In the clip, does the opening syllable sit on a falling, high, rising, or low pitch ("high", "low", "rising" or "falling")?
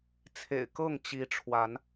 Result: low